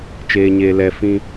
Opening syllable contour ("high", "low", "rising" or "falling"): low